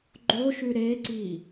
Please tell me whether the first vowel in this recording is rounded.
yes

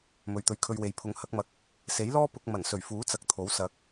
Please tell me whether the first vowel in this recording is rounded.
yes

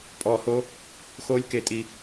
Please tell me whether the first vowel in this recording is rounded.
yes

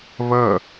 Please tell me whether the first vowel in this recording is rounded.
no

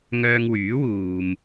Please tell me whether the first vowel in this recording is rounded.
yes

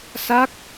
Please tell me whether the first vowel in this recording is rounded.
no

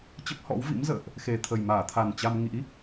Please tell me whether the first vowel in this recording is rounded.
no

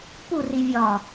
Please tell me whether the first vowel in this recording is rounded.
yes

